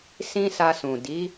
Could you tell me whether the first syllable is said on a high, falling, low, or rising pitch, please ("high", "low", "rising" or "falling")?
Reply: high